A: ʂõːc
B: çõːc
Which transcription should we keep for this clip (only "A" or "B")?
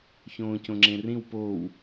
B